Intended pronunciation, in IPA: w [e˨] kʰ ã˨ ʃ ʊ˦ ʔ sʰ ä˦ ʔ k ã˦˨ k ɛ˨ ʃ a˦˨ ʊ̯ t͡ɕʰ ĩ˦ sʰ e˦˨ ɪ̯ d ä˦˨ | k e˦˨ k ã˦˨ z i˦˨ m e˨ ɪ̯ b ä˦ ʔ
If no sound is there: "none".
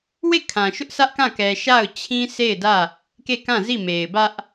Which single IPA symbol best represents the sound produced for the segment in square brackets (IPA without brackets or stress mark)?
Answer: e˦˨